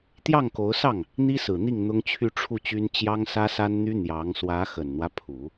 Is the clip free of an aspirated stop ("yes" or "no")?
no